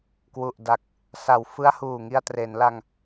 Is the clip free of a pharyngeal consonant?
yes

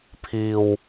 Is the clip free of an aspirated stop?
no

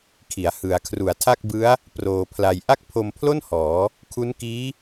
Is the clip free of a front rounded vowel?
yes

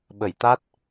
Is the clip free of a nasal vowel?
yes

